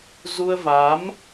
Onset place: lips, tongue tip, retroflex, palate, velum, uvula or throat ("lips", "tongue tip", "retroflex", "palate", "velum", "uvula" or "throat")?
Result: tongue tip